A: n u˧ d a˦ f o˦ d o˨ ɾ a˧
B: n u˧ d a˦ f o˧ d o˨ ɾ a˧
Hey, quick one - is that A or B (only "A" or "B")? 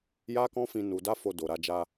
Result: B